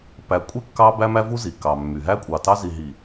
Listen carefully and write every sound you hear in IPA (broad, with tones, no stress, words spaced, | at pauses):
pæ˨kʷʼe˦ kːɑ˦bæ˦mæ˦vu˦ zi˨kɑ˨mːy˨ ɦæ˦kʷʼɑ˨tɑ˦ zi˨ɦi˨